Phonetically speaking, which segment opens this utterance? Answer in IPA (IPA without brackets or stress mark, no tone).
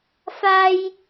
f